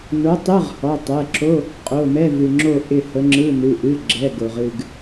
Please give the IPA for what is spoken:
n o˨˥ tˤ ɯ˧˥˧ ʁ h ɔ˩˧˩ tˤ ɛ˩˧˩ ǁ o˧˥˧ | qʼ o˩˧˩ m ɛ˧˥˧ v ɨ˩ ŋ͡ǁ o˦˨ ʔ ɪ˦˨ h ə˨˥ ŋ͡ǁ ɯ˧˥˧ n ɨ˩˧˩ ʔ ɨ˩˧˩ ɡ͡ǁ ɛ˩˧˩ ɡ o˩ ʁ ɨ˦˨ ɡ

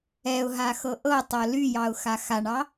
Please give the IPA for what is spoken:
ɛ ʊ̯ ɦ a x ɤ ʔ ɤ tˤ ɤ l y j ɑ ʊ̯ x a x a ɳ ɑ

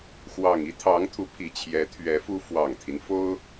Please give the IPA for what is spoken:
x w ɑ˨˩ ŋ i˥ t̪ʰ ɑ˧˥ ŋ t̪ʰ u˧˥ pʰ i˨˩ t͡ɕʰ j ɛ˧˥ t̪ʰ ɥ ɛ˧˥ f u˥ f w ɑ˨˩ ŋ t̪ʰ i˦ n f o˥ ʊ̯

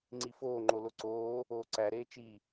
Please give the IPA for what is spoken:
ŋ͡ǀ i f oː ŋ͡ǃ o l o ǀ oː | oː ǀ æ ɾ eː t͡ʃ i

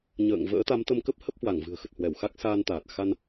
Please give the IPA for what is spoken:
ɲ ə̰ː˧˨ ŋ v ə̰ː˧˥ t̪ a˨˦ m t̪ ə˧ m k ə˦˥ p̚ h ə˦˥ p̚ h w a˧˩ ŋ v ɨ̤˨˩ ə̯ x ə˨˩ t̚ h w ɛ˧˩ w x a˦˥ k̚ s aː˧ n t̪ aː˨˩ t̚ x a˧ n

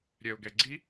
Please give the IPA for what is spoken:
ɾʲ ɛ ʊ̯ ɡ ɛ ɡ͡ǀ i

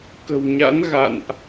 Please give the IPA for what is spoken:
k ə̤˨˩ w ɲ a̰˧˥ n ɣ a̰˧˨ n ʔ

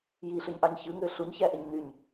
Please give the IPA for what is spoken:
j i ɬ y ɲ ʔ ɑ ɲ ç ɯ ŋ ø ɬ u ɲ ç æ ʔ e ɲ n y ɲ

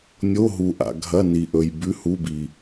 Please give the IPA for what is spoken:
nʲ o˧˥˧ ɦ u˨ ʔ a̰˨ ɡʱ ɐ˧˥˧ n i˨ ʔ ɵ˨ j b ʉ˧˥˧ h u˧˥˧ b i˨

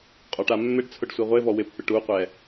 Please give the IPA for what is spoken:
qʼ ɔ ʈ a mː ɪ ɖ t͡sʰ ʊ ɖ sʷ ɛ ʁʷ e v ɔ w ɪ pː ɪ ʈ u qʷ ɛ

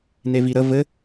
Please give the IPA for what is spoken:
n e v i ɾ ə v ɘ

